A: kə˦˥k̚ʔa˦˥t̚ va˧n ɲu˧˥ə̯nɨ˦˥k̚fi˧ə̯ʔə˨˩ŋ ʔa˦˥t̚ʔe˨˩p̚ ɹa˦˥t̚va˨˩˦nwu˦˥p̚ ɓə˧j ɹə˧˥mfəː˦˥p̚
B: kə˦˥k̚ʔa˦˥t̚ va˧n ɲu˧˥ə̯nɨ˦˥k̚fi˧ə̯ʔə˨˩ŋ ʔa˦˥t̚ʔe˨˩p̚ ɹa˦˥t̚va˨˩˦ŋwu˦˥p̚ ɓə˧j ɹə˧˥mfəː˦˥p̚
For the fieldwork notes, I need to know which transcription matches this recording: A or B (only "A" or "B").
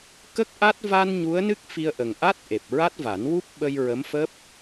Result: A